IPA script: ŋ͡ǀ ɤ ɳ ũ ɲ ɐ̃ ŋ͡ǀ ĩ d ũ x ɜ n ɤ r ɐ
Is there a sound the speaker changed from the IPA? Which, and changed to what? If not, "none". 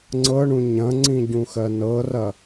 d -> ɟ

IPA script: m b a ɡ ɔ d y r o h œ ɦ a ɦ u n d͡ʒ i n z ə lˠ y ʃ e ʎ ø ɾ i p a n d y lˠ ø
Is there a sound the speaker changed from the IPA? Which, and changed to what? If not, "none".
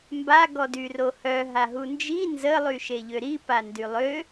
none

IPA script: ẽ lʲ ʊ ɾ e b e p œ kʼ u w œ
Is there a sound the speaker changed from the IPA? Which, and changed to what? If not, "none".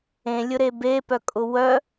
u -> ʊ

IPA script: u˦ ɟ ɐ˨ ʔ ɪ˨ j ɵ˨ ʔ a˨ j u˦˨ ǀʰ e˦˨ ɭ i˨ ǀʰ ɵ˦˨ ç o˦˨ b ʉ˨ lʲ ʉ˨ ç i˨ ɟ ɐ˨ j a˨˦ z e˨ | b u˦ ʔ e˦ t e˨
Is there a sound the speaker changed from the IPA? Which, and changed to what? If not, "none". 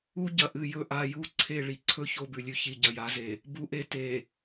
ɪ˨ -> ɨ˨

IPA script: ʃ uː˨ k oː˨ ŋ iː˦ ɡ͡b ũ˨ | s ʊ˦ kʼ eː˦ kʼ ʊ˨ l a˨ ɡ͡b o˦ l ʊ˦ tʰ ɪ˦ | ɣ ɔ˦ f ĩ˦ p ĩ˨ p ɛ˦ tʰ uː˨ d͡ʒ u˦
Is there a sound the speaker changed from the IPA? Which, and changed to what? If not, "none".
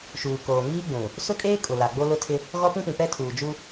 f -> p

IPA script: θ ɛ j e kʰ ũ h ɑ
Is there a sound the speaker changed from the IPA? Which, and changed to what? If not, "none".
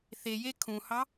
ɛ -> e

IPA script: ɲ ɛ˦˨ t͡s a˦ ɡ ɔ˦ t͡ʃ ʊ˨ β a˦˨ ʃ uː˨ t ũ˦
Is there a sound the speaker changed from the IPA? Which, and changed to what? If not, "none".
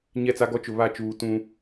ʃ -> t͡ʃ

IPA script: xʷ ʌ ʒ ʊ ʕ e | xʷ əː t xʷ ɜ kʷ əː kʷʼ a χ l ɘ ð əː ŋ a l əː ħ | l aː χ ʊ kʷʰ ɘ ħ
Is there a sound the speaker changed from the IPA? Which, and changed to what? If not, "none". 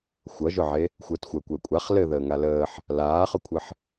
none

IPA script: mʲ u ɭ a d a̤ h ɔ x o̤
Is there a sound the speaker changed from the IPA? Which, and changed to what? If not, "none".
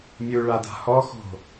none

